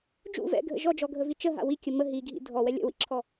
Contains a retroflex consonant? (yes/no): no